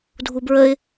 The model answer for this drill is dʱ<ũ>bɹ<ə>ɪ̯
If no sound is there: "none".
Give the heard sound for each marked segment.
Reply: u, ə

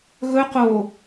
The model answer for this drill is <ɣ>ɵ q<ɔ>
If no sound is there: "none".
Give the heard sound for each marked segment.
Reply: ɣ, o

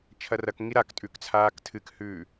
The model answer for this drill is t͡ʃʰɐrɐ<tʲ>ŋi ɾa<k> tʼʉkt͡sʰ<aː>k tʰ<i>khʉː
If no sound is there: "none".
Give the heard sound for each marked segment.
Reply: k, k, aː, ɨ

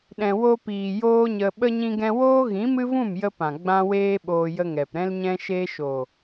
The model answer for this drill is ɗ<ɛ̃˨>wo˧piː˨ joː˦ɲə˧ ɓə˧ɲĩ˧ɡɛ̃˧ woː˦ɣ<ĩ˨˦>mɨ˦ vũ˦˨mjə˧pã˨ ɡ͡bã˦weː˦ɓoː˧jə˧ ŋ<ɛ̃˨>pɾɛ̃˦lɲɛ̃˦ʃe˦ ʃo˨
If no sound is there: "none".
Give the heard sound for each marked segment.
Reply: ɛ̃˨, ĩ˨˦, ɛ˨

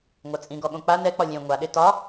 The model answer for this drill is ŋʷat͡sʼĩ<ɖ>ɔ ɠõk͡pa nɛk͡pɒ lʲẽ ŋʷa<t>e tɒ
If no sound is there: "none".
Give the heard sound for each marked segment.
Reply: ɡ, ɗ

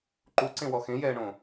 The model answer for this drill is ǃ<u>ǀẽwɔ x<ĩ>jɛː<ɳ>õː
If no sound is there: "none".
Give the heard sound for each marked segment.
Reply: u, ẽ, ɳ

